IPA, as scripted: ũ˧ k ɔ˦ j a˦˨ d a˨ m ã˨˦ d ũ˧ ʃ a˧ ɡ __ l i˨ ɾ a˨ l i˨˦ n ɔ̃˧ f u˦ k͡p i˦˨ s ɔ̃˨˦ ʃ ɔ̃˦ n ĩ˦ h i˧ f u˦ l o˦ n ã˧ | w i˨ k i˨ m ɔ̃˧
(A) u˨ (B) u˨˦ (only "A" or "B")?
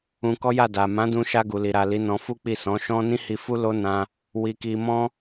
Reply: A